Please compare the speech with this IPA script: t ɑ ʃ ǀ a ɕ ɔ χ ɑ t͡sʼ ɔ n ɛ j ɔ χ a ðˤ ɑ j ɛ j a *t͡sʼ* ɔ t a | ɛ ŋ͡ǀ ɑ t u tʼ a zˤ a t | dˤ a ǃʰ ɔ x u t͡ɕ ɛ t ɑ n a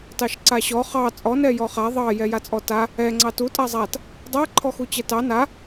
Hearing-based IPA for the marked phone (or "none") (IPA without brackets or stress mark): t͡sʼ